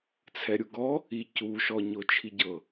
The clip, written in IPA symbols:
t͡sʰ ɛ ɾʲ u ɡ ɔ | i c u ʃ ɔ ɲ o t͡ʃʰ i ɟ ɤ

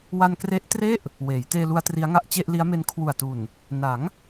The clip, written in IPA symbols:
w a˧ n k r e˦˥ ʔ t r e˥˩ ʔ | w eː˩˦ j t eː˧ l u˧ a̯ t r i˦˥ a̯ ŋ a˦˥ ʔ t͡ɕ e˥˩ ʔ l i˦˥ a̯ m e˦˥ n kʰ w u˨˩ a̯ t u˨˩ n | n a˩˦ ŋ

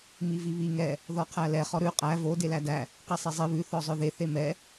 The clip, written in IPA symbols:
m i v i β i ŋ ɛ | ð ɔ qʰ æ l ɛ χ ɔ ɾ ʉ qʼ æ v o d e l æ d æ | q i sˤ ɛ zˤ i β ʉ θ ɔ zˤ œ ð e θ e m ɛ

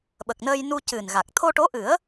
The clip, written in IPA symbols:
ɓ ə˨˩ k̚ n əː˧ j n u˧ c ɨ˨˩ n ɣ a˨˩ k̚ t̪ʰ o˧ ʈ o˧˥ ʔ ɨ˨˩˦ ə̯

